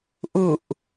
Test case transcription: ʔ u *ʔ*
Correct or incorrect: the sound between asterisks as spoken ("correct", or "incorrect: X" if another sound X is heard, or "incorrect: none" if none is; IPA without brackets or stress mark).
correct